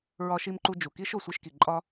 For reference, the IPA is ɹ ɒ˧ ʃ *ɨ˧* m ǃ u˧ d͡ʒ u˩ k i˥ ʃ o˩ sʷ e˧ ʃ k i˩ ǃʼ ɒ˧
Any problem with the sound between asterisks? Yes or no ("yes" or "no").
yes